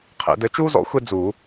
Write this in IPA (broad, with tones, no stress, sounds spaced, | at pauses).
qʰ ḛ˨˩˦ d ɘ˩˥ t͡ʃ uː˥ z ɔ̰˨˩˦ xʷ e˥ d͡z u˨˩˦